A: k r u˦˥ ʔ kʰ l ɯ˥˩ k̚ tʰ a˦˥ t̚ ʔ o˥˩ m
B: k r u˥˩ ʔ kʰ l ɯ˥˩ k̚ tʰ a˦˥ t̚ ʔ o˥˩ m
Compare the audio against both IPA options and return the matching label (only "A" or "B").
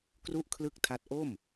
B